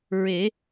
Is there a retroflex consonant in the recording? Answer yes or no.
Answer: no